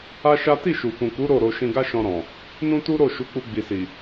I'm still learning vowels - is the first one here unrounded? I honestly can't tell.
yes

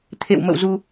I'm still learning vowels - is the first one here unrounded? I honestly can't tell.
yes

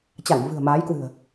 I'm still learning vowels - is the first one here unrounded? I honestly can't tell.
yes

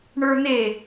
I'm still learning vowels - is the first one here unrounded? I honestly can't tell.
yes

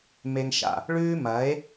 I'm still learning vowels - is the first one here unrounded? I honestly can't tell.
yes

